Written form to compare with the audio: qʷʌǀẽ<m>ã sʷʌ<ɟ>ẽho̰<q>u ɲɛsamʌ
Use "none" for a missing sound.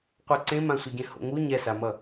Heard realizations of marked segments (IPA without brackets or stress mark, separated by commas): m, ɟ, ŋ